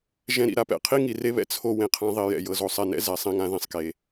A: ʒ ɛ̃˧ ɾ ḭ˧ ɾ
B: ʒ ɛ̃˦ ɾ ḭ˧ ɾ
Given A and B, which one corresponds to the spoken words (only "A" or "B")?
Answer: B